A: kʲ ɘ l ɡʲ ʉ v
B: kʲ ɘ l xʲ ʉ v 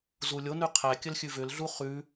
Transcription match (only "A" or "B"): B